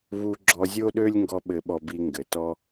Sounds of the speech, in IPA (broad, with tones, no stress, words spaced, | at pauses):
βu˧ɡ͡ǁɔ˧zʲo˦ɗø˦lʲ ŋɡɔ˦ɓɘ˧ɓɔ˧bi˧ ŋɡɘ˨tɔ˦